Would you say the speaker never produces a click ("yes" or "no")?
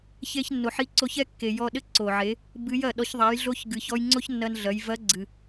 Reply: no